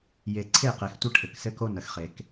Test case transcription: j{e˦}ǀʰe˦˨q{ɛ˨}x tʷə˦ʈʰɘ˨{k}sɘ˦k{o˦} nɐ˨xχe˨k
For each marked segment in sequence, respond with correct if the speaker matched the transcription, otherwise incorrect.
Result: incorrect, incorrect, correct, correct

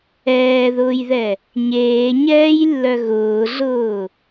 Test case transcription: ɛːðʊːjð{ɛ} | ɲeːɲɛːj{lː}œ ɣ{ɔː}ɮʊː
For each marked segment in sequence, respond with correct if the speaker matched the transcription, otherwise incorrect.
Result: correct, correct, incorrect

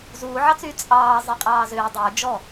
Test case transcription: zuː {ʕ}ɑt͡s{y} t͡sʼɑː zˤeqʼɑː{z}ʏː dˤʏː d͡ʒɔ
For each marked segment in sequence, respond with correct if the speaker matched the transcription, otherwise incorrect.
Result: correct, correct, correct

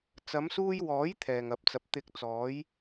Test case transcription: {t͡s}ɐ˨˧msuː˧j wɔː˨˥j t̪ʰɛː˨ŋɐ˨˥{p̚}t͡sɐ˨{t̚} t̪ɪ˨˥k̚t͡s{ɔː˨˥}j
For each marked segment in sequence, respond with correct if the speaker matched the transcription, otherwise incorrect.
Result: correct, correct, incorrect, incorrect

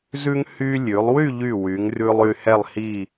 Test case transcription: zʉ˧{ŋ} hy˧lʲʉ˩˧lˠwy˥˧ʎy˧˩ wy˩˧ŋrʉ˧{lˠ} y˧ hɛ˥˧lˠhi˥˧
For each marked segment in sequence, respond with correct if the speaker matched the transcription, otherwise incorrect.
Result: correct, correct

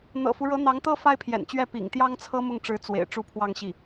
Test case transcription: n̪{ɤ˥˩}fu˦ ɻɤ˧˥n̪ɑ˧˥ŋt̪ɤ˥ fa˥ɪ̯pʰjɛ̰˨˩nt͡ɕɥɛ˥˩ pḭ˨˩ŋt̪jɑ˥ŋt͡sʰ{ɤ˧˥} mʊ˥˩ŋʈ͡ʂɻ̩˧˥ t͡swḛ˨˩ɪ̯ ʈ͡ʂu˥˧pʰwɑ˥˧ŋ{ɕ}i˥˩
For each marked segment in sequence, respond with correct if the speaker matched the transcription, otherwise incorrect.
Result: incorrect, incorrect, correct

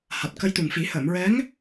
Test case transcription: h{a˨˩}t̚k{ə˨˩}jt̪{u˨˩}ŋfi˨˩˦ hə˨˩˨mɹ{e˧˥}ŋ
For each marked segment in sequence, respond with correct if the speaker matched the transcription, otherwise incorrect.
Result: correct, incorrect, correct, incorrect

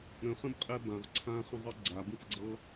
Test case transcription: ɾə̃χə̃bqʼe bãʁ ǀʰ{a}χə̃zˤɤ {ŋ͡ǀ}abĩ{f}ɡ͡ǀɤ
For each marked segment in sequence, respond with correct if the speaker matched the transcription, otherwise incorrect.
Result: incorrect, incorrect, correct

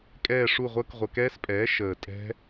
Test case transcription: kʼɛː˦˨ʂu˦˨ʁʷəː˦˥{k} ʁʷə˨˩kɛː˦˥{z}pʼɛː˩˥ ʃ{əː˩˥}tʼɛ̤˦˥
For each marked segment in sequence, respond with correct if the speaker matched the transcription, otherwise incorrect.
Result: correct, incorrect, incorrect

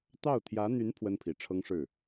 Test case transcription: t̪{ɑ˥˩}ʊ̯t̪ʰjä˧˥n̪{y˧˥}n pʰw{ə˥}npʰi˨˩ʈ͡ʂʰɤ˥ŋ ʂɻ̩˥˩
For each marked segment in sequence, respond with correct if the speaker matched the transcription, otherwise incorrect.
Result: correct, correct, correct

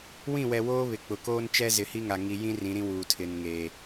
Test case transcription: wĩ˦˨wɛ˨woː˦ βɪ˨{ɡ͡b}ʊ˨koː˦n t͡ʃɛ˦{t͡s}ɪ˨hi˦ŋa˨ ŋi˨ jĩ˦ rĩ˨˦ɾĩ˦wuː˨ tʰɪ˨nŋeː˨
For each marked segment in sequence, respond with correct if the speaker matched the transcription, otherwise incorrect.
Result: incorrect, incorrect

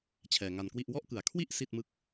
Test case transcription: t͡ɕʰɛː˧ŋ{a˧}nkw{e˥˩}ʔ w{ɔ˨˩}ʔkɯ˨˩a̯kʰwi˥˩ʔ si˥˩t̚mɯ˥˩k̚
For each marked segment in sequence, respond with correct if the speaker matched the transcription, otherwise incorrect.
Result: correct, incorrect, incorrect

